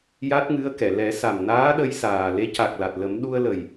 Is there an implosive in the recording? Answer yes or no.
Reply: yes